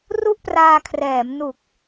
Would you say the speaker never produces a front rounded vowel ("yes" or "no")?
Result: yes